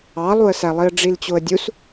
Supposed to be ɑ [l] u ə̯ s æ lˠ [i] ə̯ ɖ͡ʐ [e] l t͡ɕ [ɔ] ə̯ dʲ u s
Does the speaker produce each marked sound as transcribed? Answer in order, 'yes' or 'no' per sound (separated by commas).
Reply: no, yes, no, no